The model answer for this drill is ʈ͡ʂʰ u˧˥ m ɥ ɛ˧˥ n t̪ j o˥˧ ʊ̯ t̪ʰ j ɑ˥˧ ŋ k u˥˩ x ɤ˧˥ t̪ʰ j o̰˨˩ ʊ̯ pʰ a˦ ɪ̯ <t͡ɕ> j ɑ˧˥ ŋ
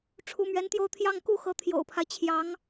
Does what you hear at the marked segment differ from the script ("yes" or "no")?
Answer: yes